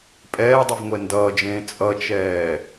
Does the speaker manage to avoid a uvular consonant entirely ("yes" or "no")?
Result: yes